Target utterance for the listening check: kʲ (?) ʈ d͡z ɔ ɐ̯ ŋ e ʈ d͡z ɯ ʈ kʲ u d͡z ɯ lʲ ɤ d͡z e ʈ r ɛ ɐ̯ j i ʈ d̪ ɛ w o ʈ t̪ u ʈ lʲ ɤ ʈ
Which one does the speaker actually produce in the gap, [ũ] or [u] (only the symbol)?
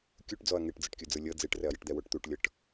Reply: u